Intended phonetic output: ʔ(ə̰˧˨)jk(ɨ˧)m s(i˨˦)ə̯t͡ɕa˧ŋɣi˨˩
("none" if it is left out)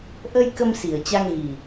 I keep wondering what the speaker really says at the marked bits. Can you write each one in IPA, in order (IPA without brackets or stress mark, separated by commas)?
ə˧, ə˧, i˨˩